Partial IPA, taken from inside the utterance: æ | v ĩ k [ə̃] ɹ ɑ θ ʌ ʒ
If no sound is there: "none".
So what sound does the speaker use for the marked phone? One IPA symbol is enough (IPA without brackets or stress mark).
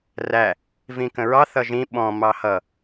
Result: ə̃